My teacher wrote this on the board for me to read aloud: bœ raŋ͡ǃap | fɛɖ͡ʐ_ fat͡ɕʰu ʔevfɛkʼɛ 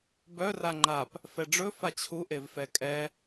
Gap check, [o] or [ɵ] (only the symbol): ɵ